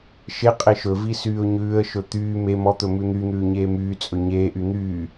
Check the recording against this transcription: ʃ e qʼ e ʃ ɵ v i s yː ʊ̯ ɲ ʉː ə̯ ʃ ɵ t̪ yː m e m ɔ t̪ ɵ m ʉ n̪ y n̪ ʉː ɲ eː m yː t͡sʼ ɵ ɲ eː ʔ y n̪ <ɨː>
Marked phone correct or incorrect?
incorrect